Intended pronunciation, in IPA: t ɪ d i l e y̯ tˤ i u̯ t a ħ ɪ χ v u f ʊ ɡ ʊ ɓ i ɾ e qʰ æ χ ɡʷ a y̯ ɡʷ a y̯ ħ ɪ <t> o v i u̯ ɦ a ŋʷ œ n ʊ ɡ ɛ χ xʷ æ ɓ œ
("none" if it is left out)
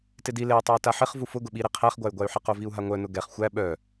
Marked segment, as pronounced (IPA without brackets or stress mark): q